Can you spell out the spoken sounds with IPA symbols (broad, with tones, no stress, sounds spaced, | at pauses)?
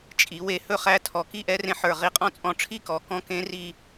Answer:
t͡ʃʼ i˩˧ w e˧ h ɵ˥˩ χ æ˦˥ tʰ ɔ˨˩ k i˥˧ ʔ ɛ˦˥ r ẽ˧ ħ ə˞˨˩ ʁ i˨˩ qʼ ɔ̃˥˧ t͡sʼ ɔ̃˧ ʈ͡ʂʰ i˥˧ k ɔ˩˧ k ɔ̃˦˥ k ẽ˦˥ r i˥˧